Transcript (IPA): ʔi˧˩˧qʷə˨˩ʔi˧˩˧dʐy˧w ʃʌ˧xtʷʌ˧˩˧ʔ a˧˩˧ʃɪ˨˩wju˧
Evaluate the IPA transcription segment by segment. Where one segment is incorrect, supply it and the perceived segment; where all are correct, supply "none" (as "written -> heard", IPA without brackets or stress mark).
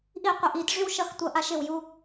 none